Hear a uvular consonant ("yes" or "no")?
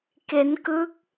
no